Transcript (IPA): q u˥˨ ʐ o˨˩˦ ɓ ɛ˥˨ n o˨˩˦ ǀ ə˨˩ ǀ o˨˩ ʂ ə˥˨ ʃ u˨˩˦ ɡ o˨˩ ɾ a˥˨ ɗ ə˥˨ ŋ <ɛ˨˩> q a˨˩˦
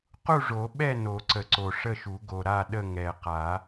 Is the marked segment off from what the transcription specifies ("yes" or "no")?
no